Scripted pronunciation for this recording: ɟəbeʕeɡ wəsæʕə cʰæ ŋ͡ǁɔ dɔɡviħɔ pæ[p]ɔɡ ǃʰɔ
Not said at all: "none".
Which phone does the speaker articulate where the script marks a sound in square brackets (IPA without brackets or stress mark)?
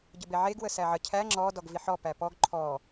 p